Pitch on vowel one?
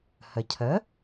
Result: low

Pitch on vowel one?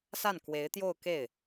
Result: falling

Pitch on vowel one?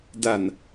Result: low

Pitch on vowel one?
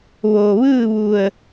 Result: low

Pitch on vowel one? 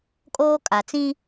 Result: high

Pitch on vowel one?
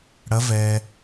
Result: rising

